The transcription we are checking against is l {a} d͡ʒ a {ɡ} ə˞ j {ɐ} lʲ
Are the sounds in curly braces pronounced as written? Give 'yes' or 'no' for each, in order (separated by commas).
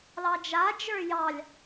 no, no, no